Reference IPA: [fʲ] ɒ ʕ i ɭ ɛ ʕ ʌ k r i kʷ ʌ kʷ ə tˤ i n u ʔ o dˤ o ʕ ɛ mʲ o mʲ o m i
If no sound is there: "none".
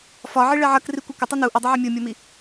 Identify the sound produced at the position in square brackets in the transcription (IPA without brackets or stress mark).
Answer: f